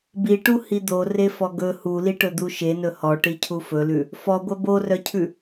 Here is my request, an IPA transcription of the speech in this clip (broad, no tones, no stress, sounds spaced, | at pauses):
b i ʈ u h i d̪ o r e f ɔ ɡ ɵ h u l i ʈ ɵ d̪ u ʃ e n ɵ h ɔ ʈ i cʰ u f ɵ l ʉ | f ɔ ɡʷ œ b o r œ cʰ ʉ